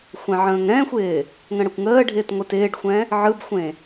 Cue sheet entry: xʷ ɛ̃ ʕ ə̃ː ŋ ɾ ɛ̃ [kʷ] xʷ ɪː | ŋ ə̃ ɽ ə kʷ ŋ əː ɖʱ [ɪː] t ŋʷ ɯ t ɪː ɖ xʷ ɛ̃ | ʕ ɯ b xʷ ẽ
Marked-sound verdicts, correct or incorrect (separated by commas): incorrect, correct